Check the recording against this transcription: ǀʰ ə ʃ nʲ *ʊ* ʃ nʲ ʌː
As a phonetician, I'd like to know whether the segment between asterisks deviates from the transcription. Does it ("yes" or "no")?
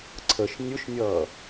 no